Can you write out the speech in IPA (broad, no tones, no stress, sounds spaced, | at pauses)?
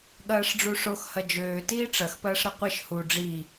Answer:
ɠ ɐː ʂ ɖ͡ʐ u ʂ o x h ɐ d͡ʒ øː t iː ʈ͡ʂ ɐ x p ɐː ʂ ɾ ɐ qʷ i ʃ h u ɖ͡ʐ i